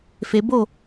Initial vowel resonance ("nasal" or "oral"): oral